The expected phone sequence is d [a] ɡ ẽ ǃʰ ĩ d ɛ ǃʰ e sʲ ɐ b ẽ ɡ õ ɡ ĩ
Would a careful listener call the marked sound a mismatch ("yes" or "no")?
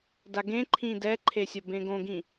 no